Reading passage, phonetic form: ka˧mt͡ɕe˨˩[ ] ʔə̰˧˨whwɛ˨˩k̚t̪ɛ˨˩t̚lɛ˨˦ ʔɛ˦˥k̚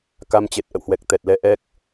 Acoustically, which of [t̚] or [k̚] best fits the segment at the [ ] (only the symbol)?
t̚